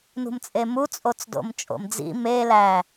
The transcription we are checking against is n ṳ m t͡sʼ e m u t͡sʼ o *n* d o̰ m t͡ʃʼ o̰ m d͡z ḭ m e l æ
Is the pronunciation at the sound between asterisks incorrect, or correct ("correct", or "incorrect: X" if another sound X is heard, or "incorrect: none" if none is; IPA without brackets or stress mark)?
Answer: incorrect: t͡s